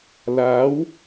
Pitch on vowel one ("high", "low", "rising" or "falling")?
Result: rising